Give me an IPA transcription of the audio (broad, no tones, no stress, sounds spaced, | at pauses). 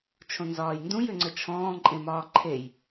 t͡ʃʰ õ n z ɒː j n d ũ j ʏ ŋ͡ǀ ə t͡ʃʰ ɔ̃ː ǃʼ ẽ m ɒː ǃʰ e j